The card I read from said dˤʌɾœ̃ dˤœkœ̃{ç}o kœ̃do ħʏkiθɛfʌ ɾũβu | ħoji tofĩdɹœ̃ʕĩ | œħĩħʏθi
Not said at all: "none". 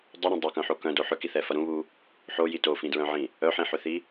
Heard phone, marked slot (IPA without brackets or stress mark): ħ